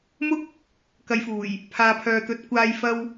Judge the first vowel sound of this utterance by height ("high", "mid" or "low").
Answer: high